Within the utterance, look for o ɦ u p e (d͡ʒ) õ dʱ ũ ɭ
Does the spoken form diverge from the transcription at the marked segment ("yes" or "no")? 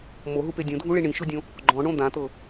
yes